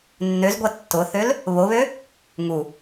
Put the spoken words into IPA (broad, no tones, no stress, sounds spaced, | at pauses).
nː ø z ɡʷ a tː ʊ θ ø l | β o β ø | ŋ u